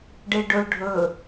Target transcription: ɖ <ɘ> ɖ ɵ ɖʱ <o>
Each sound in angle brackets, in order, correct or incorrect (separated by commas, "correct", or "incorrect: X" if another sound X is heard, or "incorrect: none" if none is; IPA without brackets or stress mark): incorrect: e, incorrect: ɵ